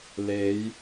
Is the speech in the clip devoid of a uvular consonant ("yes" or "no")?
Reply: yes